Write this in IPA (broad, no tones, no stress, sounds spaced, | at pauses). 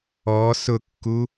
ɔ s ʊ kː u